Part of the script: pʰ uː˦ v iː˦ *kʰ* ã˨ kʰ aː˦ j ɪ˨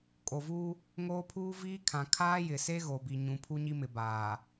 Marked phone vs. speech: correct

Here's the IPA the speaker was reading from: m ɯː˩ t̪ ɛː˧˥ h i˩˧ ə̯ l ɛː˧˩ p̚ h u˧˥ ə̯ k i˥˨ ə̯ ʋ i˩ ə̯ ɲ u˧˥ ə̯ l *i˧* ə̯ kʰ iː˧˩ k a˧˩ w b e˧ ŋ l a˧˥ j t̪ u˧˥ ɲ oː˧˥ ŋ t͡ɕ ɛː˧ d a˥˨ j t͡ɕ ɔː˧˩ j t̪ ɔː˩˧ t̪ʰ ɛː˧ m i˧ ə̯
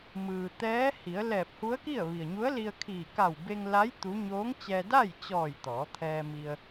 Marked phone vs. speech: correct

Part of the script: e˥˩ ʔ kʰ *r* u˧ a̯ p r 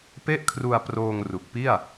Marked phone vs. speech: correct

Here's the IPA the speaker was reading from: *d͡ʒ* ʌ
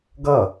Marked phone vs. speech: incorrect: ɡ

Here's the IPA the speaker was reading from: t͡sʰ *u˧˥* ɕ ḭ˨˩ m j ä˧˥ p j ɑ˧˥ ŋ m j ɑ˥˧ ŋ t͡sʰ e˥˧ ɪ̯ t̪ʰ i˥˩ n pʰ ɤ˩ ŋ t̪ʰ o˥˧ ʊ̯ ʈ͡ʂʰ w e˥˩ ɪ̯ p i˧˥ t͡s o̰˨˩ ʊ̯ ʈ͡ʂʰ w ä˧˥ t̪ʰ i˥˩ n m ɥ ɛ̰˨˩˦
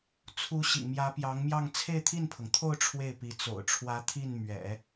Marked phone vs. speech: correct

